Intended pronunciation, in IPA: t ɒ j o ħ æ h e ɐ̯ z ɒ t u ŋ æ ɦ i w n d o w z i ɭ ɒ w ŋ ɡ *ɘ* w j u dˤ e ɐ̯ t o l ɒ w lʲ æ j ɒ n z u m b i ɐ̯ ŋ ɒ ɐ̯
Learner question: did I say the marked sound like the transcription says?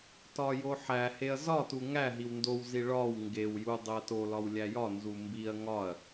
no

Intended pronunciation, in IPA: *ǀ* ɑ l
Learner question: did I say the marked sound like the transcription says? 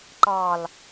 no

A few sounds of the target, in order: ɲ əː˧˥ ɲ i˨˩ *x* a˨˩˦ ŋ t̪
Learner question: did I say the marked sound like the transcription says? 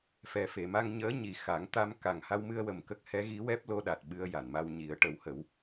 yes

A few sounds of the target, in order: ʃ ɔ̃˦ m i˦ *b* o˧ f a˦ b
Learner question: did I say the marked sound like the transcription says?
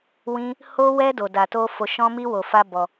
no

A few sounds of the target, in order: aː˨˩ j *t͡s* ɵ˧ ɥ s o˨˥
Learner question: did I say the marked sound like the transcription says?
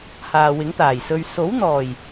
no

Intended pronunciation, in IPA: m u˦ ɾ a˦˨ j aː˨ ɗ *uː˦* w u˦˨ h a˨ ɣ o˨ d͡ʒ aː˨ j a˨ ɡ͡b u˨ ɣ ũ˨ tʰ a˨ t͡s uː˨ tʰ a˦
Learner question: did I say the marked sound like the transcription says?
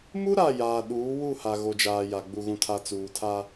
no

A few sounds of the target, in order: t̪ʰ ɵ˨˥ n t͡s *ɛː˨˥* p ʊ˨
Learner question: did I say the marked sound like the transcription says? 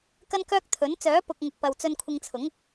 no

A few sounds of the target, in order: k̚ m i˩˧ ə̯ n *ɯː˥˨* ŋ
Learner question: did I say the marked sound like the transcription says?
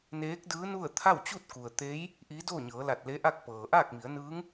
no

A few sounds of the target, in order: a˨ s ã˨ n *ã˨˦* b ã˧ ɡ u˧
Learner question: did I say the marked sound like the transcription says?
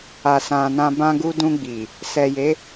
no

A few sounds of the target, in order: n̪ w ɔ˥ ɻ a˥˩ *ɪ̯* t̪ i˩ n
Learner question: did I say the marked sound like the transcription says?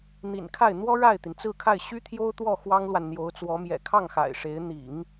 yes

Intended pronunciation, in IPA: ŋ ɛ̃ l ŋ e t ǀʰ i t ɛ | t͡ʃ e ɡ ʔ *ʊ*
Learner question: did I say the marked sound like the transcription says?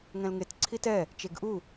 no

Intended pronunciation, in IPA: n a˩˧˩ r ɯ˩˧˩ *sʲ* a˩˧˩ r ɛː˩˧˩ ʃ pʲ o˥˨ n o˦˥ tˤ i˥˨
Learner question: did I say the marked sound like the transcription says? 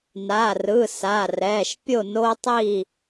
no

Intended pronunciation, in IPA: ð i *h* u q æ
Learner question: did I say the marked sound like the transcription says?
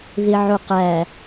no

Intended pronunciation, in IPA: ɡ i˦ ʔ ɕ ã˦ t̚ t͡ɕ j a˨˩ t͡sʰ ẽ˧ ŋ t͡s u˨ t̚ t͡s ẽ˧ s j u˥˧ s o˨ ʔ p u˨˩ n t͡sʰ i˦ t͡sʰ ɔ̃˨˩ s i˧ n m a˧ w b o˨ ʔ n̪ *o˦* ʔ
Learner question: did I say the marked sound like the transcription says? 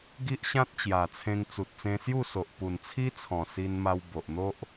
yes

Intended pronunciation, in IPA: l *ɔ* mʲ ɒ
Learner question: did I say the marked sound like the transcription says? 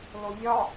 no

